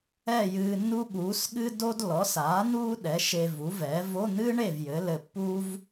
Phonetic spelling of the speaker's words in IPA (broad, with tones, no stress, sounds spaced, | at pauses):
ɛ˥˨ j ɨː˧ nː u˥ ɠ uː˩˥ s ɠ ɨ˥ d o˥ d l ɔ˩˥ s aː˩˥ n̪ uː˥ ɗ ɛ˩˥ ʃ e˧ v u˩˥ v ɛ˩˥ v o˧˥˧ n̪ ɨ˥ ɳ e˥˨ v j ɘ˩˥ l ɘ˧ pː uː˥ v